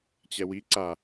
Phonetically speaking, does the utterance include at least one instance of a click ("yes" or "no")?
yes